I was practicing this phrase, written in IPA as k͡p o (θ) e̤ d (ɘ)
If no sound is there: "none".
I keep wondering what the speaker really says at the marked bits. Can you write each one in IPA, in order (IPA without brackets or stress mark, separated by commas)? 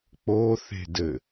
θ, ɘ